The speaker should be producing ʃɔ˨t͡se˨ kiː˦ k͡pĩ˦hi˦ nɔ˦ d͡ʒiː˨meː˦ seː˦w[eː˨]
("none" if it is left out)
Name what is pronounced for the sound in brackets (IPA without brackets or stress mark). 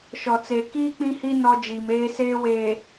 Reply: eː˨